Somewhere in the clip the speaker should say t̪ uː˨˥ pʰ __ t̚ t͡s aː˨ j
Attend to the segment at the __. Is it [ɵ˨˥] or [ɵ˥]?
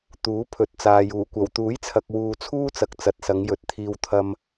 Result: ɵ˨˥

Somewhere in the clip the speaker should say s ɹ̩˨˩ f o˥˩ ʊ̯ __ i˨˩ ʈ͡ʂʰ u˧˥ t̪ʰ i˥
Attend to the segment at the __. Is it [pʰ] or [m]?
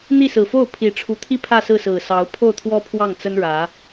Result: pʰ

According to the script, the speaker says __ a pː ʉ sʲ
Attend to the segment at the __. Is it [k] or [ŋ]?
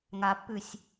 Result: ŋ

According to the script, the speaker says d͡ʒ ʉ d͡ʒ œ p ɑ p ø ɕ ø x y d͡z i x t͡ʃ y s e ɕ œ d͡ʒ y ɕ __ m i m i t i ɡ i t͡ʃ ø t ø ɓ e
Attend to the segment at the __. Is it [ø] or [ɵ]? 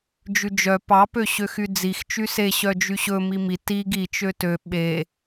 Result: ɵ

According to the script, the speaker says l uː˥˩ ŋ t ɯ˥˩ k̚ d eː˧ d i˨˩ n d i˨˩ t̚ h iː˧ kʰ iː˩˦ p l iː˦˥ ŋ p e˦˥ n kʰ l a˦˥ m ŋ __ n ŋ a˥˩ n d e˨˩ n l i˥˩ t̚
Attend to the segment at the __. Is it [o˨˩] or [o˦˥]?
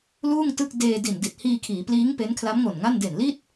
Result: o˨˩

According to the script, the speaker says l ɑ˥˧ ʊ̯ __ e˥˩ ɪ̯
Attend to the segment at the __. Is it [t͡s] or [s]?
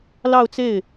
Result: t͡s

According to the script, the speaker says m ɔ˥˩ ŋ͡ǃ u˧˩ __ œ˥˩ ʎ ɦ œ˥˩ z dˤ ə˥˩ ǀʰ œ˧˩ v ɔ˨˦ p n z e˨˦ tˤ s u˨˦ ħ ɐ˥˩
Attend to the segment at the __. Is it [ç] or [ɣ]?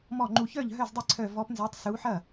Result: ç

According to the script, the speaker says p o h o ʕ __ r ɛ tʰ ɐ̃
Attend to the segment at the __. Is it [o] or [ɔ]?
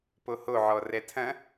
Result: ɔ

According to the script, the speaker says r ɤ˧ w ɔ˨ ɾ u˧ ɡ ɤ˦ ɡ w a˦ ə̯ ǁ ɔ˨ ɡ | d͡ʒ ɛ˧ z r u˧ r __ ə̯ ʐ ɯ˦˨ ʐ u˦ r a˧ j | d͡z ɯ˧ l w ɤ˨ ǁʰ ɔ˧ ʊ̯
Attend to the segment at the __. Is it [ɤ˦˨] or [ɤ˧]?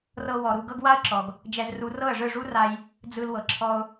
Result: ɤ˦˨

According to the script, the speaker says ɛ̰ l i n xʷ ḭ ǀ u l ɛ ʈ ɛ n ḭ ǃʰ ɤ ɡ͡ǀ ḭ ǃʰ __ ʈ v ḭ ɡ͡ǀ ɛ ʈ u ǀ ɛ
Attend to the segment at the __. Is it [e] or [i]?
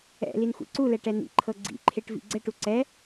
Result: e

